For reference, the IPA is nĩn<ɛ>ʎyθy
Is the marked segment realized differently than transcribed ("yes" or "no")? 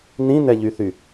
no